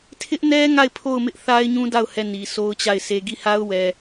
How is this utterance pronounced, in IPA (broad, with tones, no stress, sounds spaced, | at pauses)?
tʰ ɪ˦ ʔ n ɛ˦ ŋ a˦˨ ɪ̯ pʰ o˦˨ ʊ̯ m ɪ˦ ʔ θ a˦ ɪ̯ ɲ ũ˦ d a˦˨ ʊ̯ h ɛ˦˨ n i˨ s o˦ ʊ̯ t͡ɕ a˦˨ ɪ̯ s e˦ ɡ i˦˨ h a˦ ʊ̯ w ɛ˨